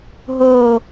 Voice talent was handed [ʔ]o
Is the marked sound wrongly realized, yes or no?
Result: yes